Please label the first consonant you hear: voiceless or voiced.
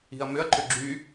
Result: voiced